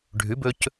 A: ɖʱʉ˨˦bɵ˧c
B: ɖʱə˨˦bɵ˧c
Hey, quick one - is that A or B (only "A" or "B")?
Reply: A